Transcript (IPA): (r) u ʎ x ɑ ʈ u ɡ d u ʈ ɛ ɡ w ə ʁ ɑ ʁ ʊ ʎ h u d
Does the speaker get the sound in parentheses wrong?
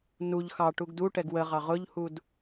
yes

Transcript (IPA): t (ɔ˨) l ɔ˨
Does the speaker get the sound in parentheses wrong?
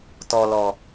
no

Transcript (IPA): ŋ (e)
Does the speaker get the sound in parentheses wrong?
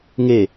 no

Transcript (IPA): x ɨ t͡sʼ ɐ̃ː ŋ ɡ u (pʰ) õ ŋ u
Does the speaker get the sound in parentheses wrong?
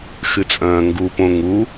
yes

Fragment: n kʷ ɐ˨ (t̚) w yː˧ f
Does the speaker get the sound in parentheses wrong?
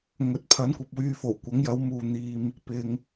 yes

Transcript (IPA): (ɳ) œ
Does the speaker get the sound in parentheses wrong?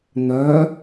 yes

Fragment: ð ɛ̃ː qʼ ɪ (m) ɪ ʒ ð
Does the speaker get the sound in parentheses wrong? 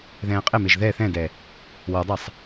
no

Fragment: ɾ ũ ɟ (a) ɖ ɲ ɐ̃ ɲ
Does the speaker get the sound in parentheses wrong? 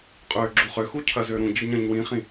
yes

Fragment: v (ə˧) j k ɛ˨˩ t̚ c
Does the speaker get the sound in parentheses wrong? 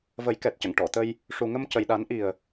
yes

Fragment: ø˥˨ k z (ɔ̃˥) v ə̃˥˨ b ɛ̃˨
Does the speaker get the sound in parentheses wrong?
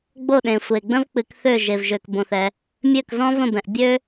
no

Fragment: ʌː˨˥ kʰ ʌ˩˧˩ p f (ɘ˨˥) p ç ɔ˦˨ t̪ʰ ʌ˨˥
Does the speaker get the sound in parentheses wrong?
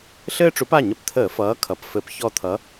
no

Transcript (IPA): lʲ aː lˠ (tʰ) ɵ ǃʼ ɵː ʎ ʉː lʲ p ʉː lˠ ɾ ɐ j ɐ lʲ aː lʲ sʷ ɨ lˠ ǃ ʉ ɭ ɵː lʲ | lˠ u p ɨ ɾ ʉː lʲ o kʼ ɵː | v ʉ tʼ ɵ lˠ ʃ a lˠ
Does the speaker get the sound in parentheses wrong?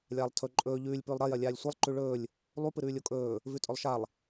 no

